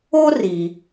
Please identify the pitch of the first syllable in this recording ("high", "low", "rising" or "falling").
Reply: high